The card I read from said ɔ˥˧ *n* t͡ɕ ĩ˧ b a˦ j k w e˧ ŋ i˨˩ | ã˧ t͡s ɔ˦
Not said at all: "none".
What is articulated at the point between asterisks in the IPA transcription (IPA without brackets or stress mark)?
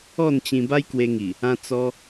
n